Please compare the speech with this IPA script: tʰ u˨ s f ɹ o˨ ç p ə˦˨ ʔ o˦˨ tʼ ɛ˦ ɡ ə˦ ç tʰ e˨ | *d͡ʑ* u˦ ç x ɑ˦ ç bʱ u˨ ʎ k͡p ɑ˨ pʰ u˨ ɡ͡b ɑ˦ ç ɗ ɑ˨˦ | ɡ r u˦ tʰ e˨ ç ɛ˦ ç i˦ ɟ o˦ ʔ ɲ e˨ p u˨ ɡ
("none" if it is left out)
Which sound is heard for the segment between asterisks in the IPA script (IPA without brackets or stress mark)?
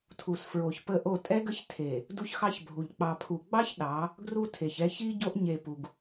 d